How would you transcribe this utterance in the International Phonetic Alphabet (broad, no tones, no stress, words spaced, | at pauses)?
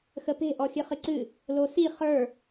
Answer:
xəpe̤ ʔɔxʲɨχɨǀɨ | losi χə˞